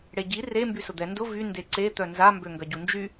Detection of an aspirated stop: absent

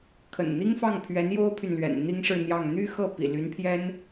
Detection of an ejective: absent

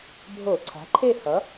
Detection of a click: present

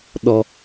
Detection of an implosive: present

